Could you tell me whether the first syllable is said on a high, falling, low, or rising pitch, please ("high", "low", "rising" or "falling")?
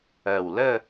low